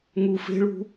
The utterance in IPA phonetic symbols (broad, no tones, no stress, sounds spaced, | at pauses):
ŋ u f e̤ ɭ ṳ